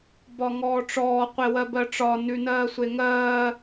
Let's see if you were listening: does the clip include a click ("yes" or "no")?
no